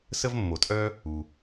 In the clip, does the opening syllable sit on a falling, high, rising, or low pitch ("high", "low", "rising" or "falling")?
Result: high